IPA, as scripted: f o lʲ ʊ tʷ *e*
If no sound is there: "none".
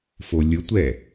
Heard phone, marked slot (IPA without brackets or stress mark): ɛ